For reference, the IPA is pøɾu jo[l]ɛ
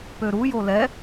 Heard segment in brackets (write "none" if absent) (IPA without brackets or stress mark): l